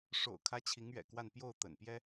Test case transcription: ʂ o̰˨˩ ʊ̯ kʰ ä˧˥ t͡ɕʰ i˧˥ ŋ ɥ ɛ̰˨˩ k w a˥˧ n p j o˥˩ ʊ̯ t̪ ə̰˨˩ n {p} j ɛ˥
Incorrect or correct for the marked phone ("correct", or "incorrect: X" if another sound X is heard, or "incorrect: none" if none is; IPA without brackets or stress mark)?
correct